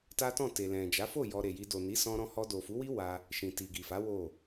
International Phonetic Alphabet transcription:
ta˦tɔ̃˦˨ te˨lɛ̃˨ d͡ʒa˨˦fo˦˨ jɔ˧ɾe˨ji˧ do˨ni˨˦ sɔ̃˦ɾɔ̃˦ hɔ˧do˨fu˨˦wi˦ wa˦ | ʃĩ˨ti˨ɡi˨fa˨˦ wo˦˨

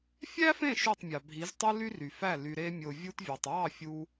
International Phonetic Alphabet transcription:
fʲæ˦fẽ˦˨ ʃy˦˨tˤmʲɑ˨bʱi˨˦ztˤɯ˦ ly˦ ry˨fæ˦˨ ly˨ɾe˧mʲo˨ vʲu˦tvʲɑ˨tˤ wɑ˦˨fʲu˧

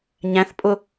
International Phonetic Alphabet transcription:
ɲæ̃θ pʼʊ

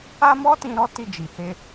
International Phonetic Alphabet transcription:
a˦mɔ˦tĩ˧ ɾɔ˦ti˧d͡ʒi˨he˧

